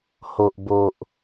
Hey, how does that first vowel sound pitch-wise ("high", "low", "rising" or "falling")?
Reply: low